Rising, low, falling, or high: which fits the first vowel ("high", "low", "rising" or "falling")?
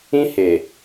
high